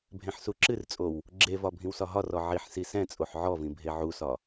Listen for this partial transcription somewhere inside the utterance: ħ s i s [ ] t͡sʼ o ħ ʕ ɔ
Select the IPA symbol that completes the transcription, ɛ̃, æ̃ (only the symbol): ɛ̃